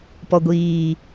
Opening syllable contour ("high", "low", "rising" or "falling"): low